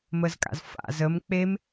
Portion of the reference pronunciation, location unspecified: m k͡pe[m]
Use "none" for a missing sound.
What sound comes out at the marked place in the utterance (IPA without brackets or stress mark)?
m